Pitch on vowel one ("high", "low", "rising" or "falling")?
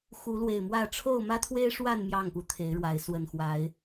rising